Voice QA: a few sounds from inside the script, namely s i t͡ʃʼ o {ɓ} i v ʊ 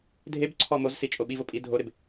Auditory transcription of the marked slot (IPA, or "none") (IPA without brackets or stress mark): ɓ